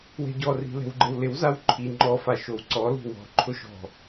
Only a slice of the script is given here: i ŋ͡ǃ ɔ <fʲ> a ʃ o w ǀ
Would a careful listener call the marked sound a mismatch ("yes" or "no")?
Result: yes